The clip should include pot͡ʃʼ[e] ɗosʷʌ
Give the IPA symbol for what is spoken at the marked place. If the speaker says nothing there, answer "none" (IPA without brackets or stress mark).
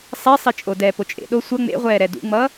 ḛ